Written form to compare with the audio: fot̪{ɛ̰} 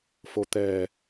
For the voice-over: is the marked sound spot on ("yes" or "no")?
no